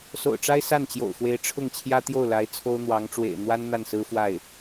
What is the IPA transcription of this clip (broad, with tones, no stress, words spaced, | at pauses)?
so̰˨˩ʊ̯ʈ͡ʂa˥ɪ̯ sa˥˩nt͡ɕjo̰˨˩ʊ̯xwe˧˥ɪ̯ ʈ͡ʂʰʊ˥˩ŋt͡ɕʰjä˥t̪jo˥˩ʊ̯la˧˥ɪ̯ t͡sʰo˥ʊ̯n̪wɑ˧˥ŋʈ͡ʂwḛ˨˩ɪ̯ n̪wa˥n n̪a˥˩nsɹ̩˥fwa˥˩ɪ̯